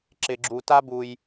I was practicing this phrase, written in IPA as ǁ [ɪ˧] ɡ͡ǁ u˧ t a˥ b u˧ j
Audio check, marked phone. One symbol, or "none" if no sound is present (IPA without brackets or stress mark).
ɪ˧